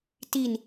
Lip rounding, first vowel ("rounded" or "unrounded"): unrounded